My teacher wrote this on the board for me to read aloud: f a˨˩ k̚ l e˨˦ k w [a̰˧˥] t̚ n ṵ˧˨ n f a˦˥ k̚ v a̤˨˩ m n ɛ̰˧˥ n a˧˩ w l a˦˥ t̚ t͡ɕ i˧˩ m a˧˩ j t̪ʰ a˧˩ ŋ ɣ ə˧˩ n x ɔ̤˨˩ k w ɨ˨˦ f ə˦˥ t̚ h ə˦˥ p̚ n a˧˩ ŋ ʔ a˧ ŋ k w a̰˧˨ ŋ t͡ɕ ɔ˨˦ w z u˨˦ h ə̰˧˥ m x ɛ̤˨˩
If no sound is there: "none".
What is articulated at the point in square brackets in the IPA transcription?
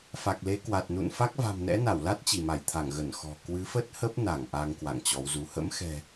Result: a˨˩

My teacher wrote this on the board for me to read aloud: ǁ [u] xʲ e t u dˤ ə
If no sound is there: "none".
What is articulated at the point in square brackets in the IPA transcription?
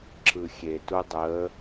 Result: ɯ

